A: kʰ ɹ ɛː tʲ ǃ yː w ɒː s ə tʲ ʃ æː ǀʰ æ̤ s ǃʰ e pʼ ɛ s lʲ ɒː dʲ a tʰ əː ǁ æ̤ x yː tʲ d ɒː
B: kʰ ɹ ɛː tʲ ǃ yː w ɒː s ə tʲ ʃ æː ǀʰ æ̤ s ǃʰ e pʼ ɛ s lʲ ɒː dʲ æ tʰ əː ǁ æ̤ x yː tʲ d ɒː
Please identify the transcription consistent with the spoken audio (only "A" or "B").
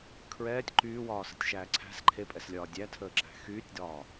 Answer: B